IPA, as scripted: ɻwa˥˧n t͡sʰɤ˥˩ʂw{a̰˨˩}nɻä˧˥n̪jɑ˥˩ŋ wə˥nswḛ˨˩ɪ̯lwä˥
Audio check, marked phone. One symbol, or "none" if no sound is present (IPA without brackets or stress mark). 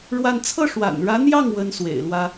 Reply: a̰˨˩